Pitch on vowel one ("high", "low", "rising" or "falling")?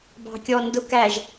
low